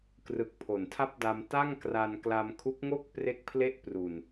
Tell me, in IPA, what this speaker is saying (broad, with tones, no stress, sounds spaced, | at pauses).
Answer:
k r ɯ˨˩ k̚ pʰ o˨˩ n tʰ a˥˩ p̚ d a˧ m t a˥˩ ŋ k r a˧ n k l a˧ m kʰ u˦˥ k̚ ŋ o˥˩ k̚ p r e˥˩ k̚ pʰ l e˥˩ ʔ p r u˨˩ n